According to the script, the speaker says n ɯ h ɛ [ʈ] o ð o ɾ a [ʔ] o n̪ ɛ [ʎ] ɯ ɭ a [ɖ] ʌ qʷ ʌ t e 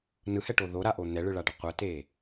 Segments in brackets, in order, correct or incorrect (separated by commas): correct, correct, incorrect, correct